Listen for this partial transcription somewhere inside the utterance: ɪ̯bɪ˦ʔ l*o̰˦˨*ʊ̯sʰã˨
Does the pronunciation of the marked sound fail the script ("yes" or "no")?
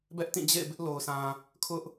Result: yes